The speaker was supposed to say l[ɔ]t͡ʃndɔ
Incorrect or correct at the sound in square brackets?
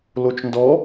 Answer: incorrect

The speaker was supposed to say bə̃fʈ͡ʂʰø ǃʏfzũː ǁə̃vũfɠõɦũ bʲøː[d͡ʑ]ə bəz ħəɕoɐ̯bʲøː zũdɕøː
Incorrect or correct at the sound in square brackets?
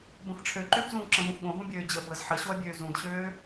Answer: correct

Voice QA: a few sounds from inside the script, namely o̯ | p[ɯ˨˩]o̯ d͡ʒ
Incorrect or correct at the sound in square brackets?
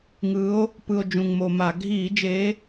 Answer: correct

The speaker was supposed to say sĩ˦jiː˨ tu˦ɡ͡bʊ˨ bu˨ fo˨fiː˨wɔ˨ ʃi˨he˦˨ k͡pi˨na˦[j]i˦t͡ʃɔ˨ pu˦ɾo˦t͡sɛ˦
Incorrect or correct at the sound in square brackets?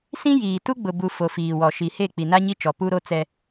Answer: incorrect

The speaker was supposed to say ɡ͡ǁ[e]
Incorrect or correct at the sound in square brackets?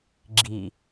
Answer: incorrect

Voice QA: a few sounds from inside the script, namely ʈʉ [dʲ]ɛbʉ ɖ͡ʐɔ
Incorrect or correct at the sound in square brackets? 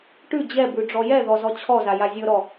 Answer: incorrect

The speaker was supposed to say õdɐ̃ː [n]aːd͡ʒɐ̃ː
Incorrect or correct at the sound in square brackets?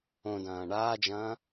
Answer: incorrect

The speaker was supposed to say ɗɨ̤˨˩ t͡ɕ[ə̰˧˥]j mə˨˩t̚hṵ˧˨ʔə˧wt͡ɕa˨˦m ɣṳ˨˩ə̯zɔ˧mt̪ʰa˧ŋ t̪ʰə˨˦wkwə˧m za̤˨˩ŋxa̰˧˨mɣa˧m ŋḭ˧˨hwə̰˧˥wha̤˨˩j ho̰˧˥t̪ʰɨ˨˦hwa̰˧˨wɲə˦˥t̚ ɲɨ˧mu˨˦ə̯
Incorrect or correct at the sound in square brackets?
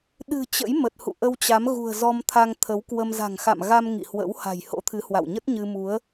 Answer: correct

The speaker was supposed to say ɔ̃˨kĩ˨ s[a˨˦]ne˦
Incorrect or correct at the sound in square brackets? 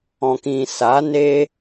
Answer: correct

